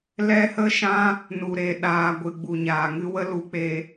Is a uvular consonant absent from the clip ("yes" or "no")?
yes